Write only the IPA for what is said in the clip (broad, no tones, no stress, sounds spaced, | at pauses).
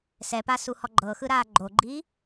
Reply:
s ɛ p a s u h ɔ ɡ͡ǃ ɤ x ɯ ɾ aː ɡ͡ǃ o ɡ͡ǃ iː